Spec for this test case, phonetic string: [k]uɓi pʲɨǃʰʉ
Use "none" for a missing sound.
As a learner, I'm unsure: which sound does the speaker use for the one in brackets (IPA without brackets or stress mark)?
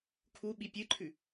kʰ